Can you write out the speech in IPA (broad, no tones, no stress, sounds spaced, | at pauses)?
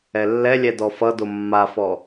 ɛ lː ɛ lʲ ɛ d ɔ f ʌ d o mː a f ɔ